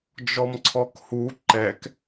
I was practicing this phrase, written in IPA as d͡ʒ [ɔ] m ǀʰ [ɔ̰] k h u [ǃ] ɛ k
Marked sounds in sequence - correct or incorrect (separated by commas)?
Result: correct, incorrect, correct